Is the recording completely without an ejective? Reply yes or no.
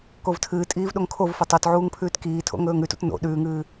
no